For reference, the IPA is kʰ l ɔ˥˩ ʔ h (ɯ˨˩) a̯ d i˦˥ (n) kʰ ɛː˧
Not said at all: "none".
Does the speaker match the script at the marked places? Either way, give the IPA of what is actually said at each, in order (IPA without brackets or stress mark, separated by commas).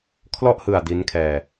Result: ɯ˨˩, n